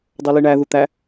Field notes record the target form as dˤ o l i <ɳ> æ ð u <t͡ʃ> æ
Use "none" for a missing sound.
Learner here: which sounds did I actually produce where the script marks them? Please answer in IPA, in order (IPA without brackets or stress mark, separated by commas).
ɳ, t̪